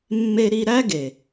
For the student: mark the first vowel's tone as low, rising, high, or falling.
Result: high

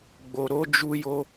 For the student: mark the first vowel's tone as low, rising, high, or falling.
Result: low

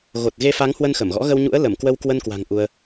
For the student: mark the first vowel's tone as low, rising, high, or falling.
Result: low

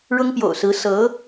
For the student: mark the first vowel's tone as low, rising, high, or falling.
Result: high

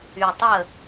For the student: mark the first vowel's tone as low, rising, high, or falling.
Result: low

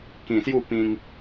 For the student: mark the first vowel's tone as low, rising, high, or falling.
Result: low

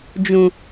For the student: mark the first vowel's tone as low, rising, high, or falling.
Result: low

